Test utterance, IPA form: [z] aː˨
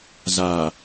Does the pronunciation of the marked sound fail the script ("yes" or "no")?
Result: no